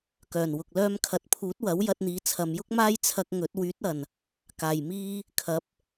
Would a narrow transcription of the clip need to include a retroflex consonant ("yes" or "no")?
no